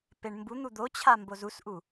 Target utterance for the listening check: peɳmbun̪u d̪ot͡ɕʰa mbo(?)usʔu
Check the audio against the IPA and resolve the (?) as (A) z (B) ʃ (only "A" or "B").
A